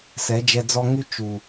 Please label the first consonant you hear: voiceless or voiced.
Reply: voiceless